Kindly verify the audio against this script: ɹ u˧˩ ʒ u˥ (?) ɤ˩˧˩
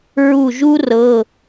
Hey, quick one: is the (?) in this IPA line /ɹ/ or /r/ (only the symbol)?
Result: r